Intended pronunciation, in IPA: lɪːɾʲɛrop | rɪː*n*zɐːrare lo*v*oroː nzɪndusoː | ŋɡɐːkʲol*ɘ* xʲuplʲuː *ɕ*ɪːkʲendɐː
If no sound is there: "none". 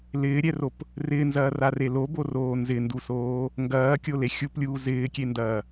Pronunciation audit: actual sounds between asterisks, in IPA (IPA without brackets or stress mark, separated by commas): n, b, e, z